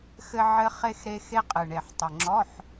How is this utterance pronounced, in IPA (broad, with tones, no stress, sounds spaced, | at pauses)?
x ɘ˧ ʕ ɘ˧ χ e˧ x ɾ e˧ x e˧ qʼ ɨ˨˩ ɳ e˨˩ ħ tˤ ɨ˨˩ ŋ͡ǁ ɔ˧˥˧ ħ